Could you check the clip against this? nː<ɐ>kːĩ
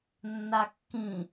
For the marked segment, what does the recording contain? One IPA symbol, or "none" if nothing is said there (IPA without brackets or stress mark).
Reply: a